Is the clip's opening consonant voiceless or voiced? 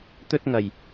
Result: voiceless